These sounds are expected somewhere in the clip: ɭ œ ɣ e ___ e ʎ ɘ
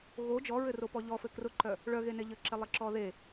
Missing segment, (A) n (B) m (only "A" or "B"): A